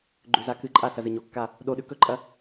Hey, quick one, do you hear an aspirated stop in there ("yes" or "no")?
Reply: no